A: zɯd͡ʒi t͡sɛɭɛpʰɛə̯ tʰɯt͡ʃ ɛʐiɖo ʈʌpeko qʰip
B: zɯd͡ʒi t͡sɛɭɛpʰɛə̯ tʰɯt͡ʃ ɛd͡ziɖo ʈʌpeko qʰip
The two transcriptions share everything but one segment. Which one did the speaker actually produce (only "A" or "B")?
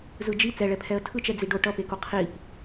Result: B